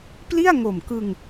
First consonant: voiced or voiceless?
voiceless